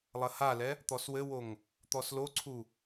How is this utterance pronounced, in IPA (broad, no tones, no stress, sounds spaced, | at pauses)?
lˠ ɐ h a l ɛ | t̪ ɔ s w ɘ w o ŋ | t̪ ɔ s l o ǀʰ u